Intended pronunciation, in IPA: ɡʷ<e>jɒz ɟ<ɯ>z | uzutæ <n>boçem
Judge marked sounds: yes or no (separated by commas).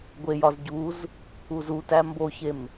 yes, no, no